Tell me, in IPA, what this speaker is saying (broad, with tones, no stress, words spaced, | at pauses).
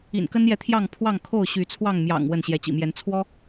ḭ˨˩nkə˦njɛ˨t̪ʰjɑ˥˨ŋ pʰwɑ˥˨ŋkʰo˥˨ʊ̯ɕy˨˦t͡sʰwɑ˥˨ŋ mjɑ̰˨˩ŋ wə˥˨n ɕjɛ˨˦t͡ɕḭ˨˩mjɛ˨˦n t͡sʰwɔ˦